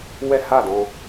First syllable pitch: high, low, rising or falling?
high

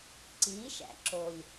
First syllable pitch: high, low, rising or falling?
rising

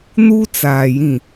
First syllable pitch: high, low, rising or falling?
high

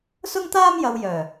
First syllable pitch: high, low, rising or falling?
high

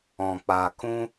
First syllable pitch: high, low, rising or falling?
low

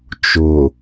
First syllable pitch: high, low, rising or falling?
low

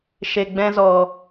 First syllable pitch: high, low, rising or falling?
low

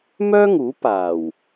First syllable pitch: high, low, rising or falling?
high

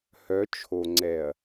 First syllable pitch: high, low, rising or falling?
rising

